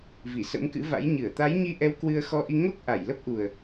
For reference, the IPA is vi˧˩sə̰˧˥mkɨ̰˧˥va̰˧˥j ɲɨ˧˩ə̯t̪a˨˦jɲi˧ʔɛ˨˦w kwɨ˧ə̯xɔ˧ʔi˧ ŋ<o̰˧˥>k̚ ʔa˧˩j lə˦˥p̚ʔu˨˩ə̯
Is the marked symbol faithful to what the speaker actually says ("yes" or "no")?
no